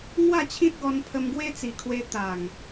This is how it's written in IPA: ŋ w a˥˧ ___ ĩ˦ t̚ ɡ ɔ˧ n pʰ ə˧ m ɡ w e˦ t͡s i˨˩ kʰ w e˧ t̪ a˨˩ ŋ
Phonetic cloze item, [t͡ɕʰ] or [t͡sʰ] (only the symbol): t͡ɕʰ